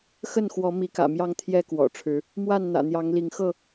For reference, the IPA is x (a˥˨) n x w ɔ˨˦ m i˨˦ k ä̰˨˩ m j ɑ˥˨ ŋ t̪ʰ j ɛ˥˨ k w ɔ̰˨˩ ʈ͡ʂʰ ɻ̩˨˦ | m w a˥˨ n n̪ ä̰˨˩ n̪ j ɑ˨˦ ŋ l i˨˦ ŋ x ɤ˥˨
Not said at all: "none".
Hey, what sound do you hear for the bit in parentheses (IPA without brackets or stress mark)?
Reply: ə˥˨